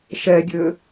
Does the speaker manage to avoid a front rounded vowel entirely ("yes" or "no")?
no